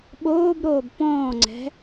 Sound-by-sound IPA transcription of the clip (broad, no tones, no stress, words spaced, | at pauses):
ɓoːbɾoːb pɔ̃ːŋ͡ǀɛ̤